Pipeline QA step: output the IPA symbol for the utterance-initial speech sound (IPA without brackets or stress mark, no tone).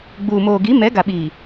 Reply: ɡ͡b